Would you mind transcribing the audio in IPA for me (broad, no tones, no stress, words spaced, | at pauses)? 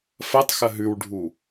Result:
fɐtˤxɐ ɦʉwɖʱu